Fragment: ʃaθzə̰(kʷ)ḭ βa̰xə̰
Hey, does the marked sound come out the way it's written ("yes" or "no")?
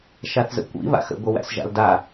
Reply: yes